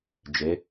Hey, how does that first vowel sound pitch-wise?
rising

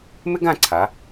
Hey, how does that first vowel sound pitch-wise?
high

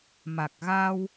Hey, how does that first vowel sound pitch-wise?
low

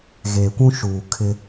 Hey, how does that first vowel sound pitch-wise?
low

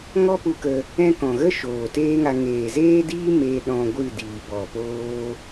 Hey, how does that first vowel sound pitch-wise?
high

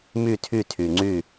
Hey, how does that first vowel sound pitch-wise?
falling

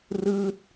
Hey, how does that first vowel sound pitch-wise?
falling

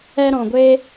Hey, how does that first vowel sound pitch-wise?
high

